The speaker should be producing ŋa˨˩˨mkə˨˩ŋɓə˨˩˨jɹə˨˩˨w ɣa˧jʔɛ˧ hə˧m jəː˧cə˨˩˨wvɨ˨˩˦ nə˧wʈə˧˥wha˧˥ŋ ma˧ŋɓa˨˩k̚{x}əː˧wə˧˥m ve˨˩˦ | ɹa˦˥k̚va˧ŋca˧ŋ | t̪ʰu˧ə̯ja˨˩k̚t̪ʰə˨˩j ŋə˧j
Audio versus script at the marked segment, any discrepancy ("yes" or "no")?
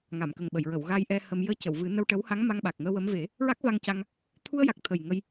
yes